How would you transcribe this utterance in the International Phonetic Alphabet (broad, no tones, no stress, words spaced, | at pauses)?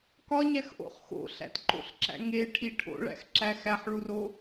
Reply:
kɒɲæxʔo̰χ xo̰ɬæ̰tǃo̰ɬǁæ̰ ŋeʈʰi ʈʰo̰ɭæ̰xǁæ xæħɭuro